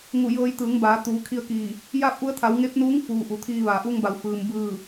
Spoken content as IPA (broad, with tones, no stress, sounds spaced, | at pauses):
ŋ u˧˩ j ɤː˧ j t̪ ɯː˩˧ ŋ b aː˩˧ t̪ uː˩˧ kʰ i˧ ə̯ k iː˧˩ | j aː˥˨ p̚ ʔ u˧˥ ə̯ t̪ʰ a˩˧ w ŋ e˧˥ p̚ n uː˧˥ ŋ f uː˩ ʔ u˩ t̪ʰ iː˧ ʋ a˩ ʔ uː˧ ŋ b a˩ w f ɯː˩ m b ɯː˧˩